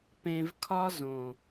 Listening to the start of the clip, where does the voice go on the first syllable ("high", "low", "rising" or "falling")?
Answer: low